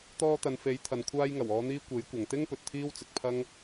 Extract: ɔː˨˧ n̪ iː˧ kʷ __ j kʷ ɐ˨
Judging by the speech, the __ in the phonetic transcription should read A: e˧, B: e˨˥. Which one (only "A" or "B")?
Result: B